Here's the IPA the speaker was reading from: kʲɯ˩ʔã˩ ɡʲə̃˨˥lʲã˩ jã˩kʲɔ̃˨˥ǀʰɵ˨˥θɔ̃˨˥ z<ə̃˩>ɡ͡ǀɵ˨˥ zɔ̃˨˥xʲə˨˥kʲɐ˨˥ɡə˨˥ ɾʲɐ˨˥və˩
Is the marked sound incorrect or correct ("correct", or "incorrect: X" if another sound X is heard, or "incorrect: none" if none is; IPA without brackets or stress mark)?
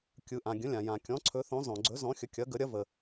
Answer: incorrect: ɔ̃˩